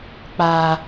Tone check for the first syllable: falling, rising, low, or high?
low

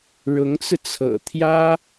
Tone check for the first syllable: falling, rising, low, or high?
rising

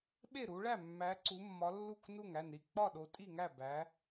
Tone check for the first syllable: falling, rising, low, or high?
falling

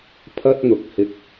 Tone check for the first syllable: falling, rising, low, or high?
high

